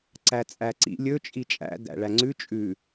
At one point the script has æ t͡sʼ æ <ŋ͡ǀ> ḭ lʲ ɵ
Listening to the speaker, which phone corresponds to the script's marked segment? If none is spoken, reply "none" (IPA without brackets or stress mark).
ǀ